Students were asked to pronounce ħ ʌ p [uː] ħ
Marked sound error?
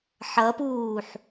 no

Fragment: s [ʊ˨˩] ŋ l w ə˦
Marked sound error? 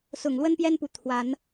no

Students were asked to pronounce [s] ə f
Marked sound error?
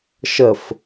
yes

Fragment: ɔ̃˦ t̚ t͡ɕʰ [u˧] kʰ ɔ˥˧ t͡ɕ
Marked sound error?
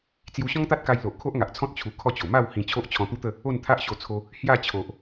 no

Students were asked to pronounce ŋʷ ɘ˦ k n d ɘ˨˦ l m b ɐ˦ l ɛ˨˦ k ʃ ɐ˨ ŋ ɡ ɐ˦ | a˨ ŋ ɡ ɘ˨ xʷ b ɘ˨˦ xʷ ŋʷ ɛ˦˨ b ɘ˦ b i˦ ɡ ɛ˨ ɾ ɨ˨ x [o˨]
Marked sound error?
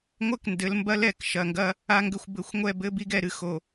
no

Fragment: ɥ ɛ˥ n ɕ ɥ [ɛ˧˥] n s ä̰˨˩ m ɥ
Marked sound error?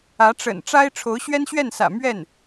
yes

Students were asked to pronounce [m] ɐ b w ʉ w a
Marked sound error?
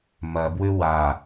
no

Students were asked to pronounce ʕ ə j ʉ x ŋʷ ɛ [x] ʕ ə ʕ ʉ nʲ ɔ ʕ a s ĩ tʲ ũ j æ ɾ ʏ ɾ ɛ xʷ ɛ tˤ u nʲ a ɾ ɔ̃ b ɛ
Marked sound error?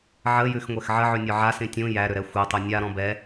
no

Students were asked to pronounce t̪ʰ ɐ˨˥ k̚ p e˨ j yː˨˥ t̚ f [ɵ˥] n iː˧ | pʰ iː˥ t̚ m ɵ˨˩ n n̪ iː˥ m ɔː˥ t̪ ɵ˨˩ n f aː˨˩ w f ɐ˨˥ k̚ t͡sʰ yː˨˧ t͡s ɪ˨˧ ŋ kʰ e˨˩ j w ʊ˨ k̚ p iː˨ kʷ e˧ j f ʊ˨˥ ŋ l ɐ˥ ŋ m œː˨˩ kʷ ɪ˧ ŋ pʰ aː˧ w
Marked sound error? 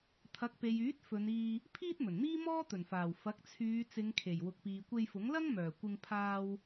yes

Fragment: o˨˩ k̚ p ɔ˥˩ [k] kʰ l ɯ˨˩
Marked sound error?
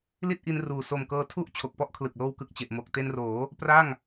yes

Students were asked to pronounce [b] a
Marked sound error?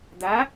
yes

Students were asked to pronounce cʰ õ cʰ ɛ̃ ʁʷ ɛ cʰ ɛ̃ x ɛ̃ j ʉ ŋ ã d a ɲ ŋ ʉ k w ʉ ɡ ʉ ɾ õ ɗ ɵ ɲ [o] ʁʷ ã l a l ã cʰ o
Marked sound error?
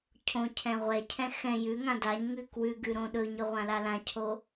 yes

